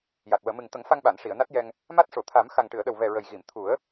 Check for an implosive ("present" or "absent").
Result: present